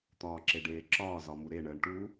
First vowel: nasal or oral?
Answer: oral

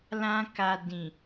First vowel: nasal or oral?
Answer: nasal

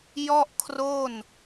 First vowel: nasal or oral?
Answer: oral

